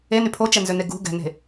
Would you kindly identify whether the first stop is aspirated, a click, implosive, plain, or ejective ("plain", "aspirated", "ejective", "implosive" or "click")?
aspirated